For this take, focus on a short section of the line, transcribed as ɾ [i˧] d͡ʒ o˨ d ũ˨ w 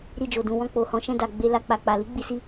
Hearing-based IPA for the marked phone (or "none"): i˧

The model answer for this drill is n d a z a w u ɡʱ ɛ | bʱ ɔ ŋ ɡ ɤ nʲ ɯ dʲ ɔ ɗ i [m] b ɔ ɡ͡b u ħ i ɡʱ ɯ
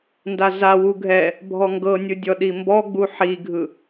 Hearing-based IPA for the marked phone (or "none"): m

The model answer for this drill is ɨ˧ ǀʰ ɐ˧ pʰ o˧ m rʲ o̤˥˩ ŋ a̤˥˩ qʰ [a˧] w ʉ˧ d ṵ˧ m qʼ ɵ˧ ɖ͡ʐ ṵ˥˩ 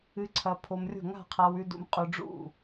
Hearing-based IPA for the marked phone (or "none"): a˧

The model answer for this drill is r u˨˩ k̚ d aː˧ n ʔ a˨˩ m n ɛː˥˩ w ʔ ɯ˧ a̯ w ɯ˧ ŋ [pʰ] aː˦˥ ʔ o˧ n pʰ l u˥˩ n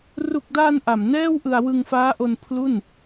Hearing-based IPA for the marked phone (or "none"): f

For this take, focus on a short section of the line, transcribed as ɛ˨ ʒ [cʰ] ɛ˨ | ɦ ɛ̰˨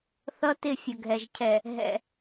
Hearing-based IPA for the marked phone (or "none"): cʰ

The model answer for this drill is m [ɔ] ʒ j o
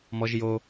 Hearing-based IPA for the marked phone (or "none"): ɔ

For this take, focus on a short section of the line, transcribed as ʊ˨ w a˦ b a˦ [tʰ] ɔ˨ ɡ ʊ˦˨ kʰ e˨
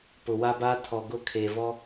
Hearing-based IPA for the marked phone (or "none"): tʰ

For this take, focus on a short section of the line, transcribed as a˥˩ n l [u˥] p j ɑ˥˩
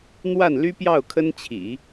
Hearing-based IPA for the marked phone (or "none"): y˥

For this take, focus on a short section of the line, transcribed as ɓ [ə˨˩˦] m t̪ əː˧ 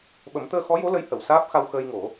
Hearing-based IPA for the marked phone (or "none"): ə˨˩˦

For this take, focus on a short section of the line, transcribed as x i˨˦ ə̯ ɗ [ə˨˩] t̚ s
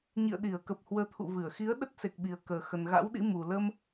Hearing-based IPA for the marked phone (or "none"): ə˦˥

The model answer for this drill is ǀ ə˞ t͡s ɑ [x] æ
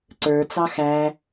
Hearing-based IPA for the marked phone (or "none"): x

